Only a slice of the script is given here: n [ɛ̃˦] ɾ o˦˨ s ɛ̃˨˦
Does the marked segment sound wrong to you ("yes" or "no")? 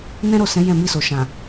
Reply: no